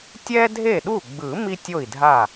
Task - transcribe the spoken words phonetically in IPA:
tʲ ɛ˥ dʱ e˥˩ ɗ u˥˩ ɡ͡b ɯ˨˩˦ m i˥ tʲ o˥˩ i̯ dʱ a˥˩

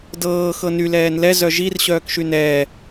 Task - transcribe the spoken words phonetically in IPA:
d ɤː x ɤ n y l ɛː n l ɛ z œ ʒ i r ɕ œː k ʃ y n ɛː

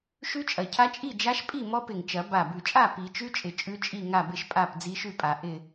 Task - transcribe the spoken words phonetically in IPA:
ʃ ʉ˦˥ t͡ʃʼ ɐ˨˩ cʰ a˦˥ t͡ʃʼ i˥˨ d͡ʒ a˦˥ ʃ pʼ i˥˨ m ɔ˦˥ p ɪ˨˩ ŋ t͡ʃ ɐ˨˩˦ b a˨˩ b ʉ˨˩ t͡ʃʼ a˥˨ p i˨˩˦ t͡ʃ ʉ˦˥ t͡ʃʼ ɪ˨˩ t͡ʃʼ ʉ˦˥ t͡ʃʼ i˥˨ ŋ a˥˨ b ɪ˥˨ ʃ pʼ a˥˨ p d͡z i˦˥ ʃ ʉ˥˨ pʼ a˨˩˦ ʔ ɪ˥˨

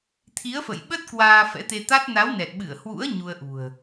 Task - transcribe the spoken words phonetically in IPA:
t̪ʰ i˨˦ ə̯ f ə̰˧˨ j ɓ ə˦˥ t̚ k w aː˧ f ɛ̰˧˥ t̪ e˧ t̪ a˦˥ t̚ n a˨˦ w n ɛ˨˩ t̚ ɓ ɨ˧˩ ə̯ h w ṵ˧˥ ə̯ ɲ u˧ ə̯ ʔ ṳ˨˩ ə̯

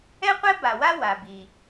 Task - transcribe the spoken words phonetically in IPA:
ɛ˥ qʷ ɛ˥ b a˩ w a˥ w a˩ b i˩

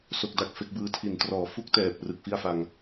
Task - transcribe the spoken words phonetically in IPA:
s o˥˩ k̚ d a˥˩ k̚ f e˦˥ k̚ b ɯː˧ tʰ i˨˩ n t r ɔː˨˩ f u˥˩ k̚ t ɛː˨˩ p̚ r ɯ˨˩ k̚ f i˥˩ a̯ f a˧ ŋ

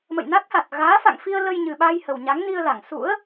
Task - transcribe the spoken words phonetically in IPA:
m ə̰˧˨ j n a˦˥ k̚ h a˨˩ t̚ ɣ aː˨˦ f a̰˧˨ ŋ f i˧ ə̯ l ə˧ j ɲ ɨ˨˩ ɓ a˧ j h ə˨˩ w ɲ a˨˦ ŋ n i˧ ə̯ l a˧˩ ŋ s ṵ˧˥ ə̯

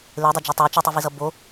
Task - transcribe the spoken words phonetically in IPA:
l e dˤ o d͡ʒ o tˤ ɛ t͡ʃ ɯ tˤ ɯ v i z ʌ b o

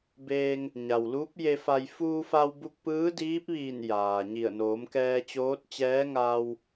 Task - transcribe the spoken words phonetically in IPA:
b eː˧ ŋ | ɲ a˩ w l uː˧˥ p̚ j e˧ f a˧ j f uː˧ f a˧ w b u˧ k̚ p ɯː˧˥ d iː˧˥ p̚ ʋ iː˧˩ n j aː˩ ɲ i˧˩ ə̯ n oː˩˧ m k ɛː˧ t͡ɕ oː˧˥ t̚ t͡ɕ ɛː˧˥ ŋ aː˧ w

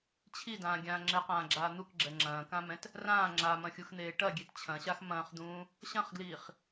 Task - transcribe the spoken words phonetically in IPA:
t͡ɕʰ i d ãː ɡʲ ãː ŋ͡ǁ ɘ q ãː ɡ͡ǁ aː n̪ u k ɡ͡ǁ ɛ ŋ͡ǁ ɐ̃ː k ã m ɛ̃ t | r ãː ŋ͡ǁ a m ɐ̃ xʲ u x n̪ eː ʈ ɐ ɡʲ e t t͡ɕʰ ɐ̃ ɕ a x m ɐ̃ː χ d̪ ũː | ɕ ɐ̃ χ ɡ l iː χ

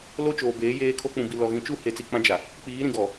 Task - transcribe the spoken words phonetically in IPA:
l o˦ t͡ʃ oː˨ b eː˨˦ j eː˦ kʰ o˦ k͡p ũ˨ b i˨ l ɔ˨ ɣ ĩ˨ t͡ʃ u˦˨ h e˨ t͡s i˨ k͡p ã˦ d͡ʒ a˨ | k͡p iː˨˦ ɾ ĩ˨ ɡ ɔ˨

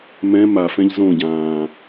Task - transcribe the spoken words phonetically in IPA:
m ɛ̃ m a f ɛ̃ ʎ z õ ɟ ãː

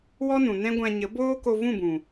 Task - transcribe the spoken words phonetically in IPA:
w ɔ˦ n ũ˨ n ɛ̃˦ ɡʷ ã˧ ɲ ə˨˦ b oː˦ k o˧ v ũ˦˨ b ũ˨

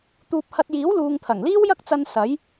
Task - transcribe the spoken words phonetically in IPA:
t̪ uː˧ p̚ h ɐ˧ t̚ j iː˨˥ w l uː˨ ŋ t̪ʰ ɐ˨˩ ŋ l iː˥ w j ɐ˥ k̚ t͡s ɐ˧ n s ɐ˨˥ j

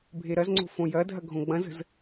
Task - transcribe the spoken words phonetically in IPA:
bʱ e ɾ ɐ z ŋ͡ǀ o̤ f õ j ɐ dʱ ɐ ɡʱ õ ɡ͡b ɐ̃ z ə̤ z

